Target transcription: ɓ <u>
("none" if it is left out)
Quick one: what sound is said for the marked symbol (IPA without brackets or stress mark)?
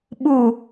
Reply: u